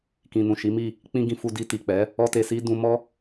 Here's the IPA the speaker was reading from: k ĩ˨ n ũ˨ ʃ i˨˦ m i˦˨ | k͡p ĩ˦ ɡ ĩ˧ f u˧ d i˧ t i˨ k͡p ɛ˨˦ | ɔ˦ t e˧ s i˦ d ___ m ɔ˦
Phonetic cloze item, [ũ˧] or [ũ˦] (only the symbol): ũ˧